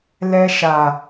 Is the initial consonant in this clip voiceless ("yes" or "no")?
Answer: no